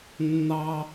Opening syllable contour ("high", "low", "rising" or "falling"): low